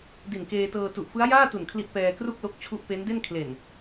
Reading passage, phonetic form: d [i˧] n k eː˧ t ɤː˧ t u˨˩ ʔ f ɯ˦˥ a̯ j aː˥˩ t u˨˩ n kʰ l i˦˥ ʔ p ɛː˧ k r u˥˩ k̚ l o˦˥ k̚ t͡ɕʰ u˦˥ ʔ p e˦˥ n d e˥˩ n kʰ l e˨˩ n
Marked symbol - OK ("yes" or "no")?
no